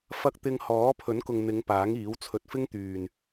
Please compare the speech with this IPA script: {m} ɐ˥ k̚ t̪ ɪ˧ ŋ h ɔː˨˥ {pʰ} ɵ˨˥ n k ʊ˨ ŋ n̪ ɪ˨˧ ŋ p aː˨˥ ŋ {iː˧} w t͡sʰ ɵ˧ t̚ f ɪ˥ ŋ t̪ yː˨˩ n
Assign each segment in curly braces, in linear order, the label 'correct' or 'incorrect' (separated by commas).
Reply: incorrect, correct, incorrect